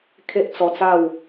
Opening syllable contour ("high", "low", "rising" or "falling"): high